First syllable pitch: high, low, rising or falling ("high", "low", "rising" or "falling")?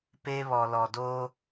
high